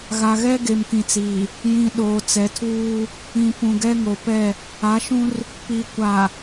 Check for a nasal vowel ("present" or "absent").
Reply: present